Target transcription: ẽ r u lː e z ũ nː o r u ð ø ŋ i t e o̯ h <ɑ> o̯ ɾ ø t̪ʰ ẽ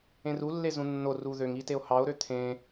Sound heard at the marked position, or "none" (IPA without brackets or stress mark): ɑ